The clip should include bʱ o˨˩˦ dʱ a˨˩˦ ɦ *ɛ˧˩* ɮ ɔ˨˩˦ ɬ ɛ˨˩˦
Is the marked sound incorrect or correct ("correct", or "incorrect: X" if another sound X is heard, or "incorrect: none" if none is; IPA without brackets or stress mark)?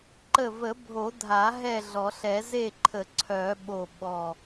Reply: incorrect: ɛ˥˨